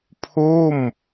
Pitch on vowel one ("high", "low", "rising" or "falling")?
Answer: falling